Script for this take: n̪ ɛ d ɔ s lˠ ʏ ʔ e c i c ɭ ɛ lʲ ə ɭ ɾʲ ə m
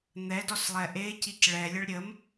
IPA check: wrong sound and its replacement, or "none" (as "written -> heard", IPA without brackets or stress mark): ʏ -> ɛ